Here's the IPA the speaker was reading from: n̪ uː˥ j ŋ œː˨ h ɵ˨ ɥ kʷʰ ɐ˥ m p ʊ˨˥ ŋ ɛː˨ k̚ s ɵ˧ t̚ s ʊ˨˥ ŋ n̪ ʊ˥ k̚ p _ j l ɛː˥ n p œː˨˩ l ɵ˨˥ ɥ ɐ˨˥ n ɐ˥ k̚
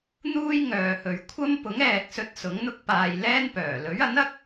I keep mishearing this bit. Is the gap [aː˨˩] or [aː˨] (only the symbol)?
aː˨